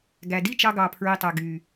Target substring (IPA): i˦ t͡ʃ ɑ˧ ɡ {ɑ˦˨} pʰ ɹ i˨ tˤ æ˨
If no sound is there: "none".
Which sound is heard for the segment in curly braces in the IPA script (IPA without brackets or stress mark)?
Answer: ɑ˨